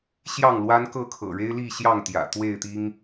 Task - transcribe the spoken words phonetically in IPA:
ɕjɑ˥˨ŋ lwa˦nkɤ˥˨kʰɤ̰˨˩ ɻe˦ɪ̯li˥˨ ɕjɑ˥˨ŋt̪jä̰˨˩ t̪we˥˨ɪ̯t̪i˦ŋ

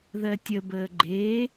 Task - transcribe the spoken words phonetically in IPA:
ðɜtʲəbəː ɡ͡ǃe

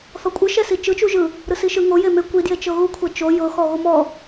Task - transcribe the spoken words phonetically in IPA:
θɔkʷʼɯʃɛsi t͡ʃɯt͡ʃuʒɯ | ɾɯsiʃɯ ŋo jeme kʷidjet͡ʃɤ ɣukʷʰɛ t͡ʃo jɤxɔ ɣomɔ

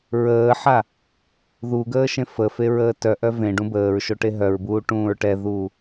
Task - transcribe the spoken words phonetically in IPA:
ɹəːħa | ðuɡəː ʃẽfəfe ɹəːtœʔœ vẽ ɖũbəːɹʃo ʈeɦœɹbuː ʈũːɹʈɛðuː

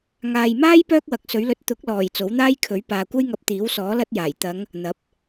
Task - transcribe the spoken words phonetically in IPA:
ŋaː˨jmaː˥j pœː˥k̚wɐ˨˥k̚sɵ˨˥ɥ lɵ˧t̚ t̪ʊ˨˥k̚lɔː˨˩j t͡so˨˥wn̪aː˥jkʰɵ˨˥ɥ paː˨kʷɐ˥jŋɐ˧p̚ t̪iː˨˥wsɔː˨˥ lɐ˥t̚jaː˨˩j t̪ɐ˨˧ŋ | n̪ɐ˨˥p̚

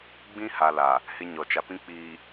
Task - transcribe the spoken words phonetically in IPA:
ɡ͡bĩ˦ ha˨ la˨ | hɪ˦ɲɔ˨ t͡ʃa˨pĩ˦k͡piː˨

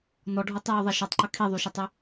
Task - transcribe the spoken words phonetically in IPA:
nɔɖʱotˤjoðˤɛ ʃɔtˤǃə kʰiðˤyʃətˤy

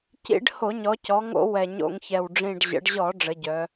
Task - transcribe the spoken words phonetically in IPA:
cḭ˧˩˧ɖ ho˧˩˧ɲɔ˩˧cɔ˩˧ŋo̰˧˩˧ wɛ˨˩ɲo̰˧˩˧ŋçɛ˨˩w ɖ͡ʐĩ˨˩ɖʑə̰˩˧ɖʑɔ˧˩˧ ɖ͡ʐə˩˧ɟœ˩˧

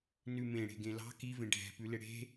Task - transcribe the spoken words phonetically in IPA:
nʉmẽ ɽe̤ɡẽlɑ̤ kivẽ ɖʱɛ̤pʉlɪ ɽe̤

